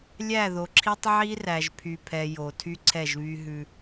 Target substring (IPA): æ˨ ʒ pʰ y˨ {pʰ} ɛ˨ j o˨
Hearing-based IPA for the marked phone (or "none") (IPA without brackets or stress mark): pʰ